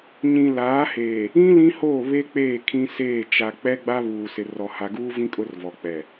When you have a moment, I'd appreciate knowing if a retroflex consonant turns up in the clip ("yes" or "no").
no